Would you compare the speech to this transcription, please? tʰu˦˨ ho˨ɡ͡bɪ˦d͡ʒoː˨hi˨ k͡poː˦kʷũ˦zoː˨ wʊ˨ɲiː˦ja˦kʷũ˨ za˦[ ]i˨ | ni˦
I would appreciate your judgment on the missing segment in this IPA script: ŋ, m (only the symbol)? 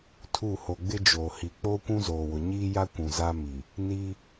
m